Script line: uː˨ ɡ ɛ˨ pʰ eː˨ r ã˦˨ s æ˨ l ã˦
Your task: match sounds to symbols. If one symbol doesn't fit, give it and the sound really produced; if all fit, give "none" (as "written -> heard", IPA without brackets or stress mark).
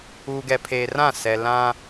æ˨ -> ɛ˨